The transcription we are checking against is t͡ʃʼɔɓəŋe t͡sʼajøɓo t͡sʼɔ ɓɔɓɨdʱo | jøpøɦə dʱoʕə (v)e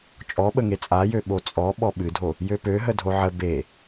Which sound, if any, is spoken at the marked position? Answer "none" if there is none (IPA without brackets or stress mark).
b